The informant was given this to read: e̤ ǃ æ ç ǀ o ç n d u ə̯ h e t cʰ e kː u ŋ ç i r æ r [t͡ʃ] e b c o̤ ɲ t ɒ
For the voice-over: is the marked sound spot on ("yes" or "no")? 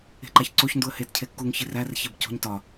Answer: no